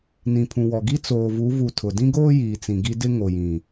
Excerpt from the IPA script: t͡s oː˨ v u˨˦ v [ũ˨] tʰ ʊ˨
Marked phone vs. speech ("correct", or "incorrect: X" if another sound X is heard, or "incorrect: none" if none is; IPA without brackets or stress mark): incorrect: u˨